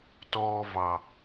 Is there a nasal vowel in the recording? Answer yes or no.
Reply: no